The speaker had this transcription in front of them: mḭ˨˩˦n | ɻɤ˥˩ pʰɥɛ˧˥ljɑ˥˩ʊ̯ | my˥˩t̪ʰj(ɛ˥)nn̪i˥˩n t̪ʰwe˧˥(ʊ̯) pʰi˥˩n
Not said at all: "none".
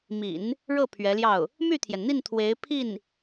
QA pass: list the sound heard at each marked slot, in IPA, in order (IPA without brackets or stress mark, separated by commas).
ɛ˩, ɪ̯